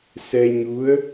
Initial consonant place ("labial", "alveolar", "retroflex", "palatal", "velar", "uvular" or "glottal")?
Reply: alveolar